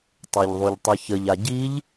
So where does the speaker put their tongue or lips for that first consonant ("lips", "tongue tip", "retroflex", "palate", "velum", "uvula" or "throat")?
tongue tip